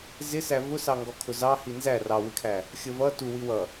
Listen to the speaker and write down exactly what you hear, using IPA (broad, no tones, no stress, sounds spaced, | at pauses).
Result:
z ɪ s æ v ʊ s ɑ ŋ ɡ ɔ kʰ ʊ z ɑ h i n z æ r ɑ w ɪ kʰ æ | xʲ ə v ʌ t u w i w ʌ